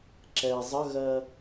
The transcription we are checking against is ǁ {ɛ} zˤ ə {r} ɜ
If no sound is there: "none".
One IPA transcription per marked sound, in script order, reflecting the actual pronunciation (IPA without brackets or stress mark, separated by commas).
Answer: ɛ, ɣ